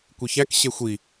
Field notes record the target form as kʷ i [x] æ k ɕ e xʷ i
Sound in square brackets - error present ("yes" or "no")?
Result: yes